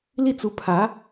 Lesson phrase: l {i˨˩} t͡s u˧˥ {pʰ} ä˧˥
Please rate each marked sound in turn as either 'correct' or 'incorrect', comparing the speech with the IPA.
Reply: incorrect: i˥˩, correct

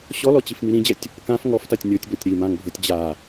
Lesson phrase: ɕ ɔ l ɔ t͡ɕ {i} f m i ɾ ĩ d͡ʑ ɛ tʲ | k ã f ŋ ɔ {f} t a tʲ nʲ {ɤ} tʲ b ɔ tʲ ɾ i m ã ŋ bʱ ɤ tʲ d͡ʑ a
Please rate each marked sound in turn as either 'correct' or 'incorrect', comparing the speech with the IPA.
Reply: correct, correct, correct

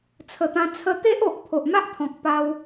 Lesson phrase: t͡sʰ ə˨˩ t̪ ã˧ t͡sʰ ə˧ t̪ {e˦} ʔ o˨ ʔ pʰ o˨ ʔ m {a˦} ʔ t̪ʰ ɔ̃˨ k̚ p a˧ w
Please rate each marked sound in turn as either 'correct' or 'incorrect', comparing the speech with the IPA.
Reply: correct, correct

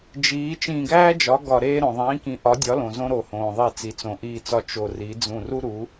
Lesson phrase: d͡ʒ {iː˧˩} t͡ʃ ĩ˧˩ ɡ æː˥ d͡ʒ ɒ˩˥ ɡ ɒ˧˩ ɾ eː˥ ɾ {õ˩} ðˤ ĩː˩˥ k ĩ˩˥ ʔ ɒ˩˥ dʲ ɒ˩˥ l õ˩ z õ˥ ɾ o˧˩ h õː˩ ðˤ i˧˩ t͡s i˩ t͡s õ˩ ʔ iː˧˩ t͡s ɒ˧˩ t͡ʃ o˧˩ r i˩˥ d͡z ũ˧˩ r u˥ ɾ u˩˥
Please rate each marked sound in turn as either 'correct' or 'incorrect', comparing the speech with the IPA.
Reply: incorrect: iː˩˥, correct

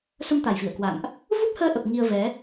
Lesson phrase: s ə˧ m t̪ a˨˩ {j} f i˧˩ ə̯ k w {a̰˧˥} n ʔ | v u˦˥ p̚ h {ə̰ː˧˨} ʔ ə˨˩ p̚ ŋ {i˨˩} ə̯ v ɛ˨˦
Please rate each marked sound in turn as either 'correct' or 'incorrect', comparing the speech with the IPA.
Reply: correct, incorrect: a̰˧˨, incorrect: əː˧, incorrect: i˧

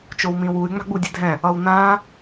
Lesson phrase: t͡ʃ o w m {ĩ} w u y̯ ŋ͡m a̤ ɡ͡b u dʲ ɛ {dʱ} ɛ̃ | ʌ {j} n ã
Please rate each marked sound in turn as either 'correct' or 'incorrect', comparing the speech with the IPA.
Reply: correct, correct, incorrect: w

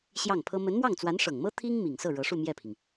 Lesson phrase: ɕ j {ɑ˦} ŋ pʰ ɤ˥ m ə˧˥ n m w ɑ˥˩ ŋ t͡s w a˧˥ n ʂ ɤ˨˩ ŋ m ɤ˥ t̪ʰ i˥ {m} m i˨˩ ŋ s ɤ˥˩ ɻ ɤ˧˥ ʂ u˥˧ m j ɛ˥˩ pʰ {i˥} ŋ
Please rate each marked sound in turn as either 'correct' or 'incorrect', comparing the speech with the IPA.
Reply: incorrect: ɑ˥˩, incorrect: ŋ, incorrect: i˩

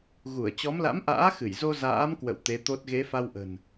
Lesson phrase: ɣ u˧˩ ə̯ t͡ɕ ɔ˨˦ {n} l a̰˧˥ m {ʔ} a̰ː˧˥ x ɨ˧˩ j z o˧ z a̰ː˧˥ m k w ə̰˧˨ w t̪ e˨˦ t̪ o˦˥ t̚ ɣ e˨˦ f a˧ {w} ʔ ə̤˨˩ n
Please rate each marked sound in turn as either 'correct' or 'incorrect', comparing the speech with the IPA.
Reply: incorrect: m, correct, correct

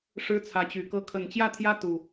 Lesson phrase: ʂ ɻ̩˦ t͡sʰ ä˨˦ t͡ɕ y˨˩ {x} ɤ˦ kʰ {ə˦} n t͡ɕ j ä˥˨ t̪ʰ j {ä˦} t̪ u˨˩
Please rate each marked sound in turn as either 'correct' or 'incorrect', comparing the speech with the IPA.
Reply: incorrect: k, incorrect: ə˨˩, correct

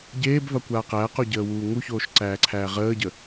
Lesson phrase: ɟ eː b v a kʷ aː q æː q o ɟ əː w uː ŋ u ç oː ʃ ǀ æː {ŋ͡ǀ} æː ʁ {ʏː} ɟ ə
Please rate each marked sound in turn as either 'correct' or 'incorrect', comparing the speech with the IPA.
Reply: incorrect: ǀʰ, incorrect: əː

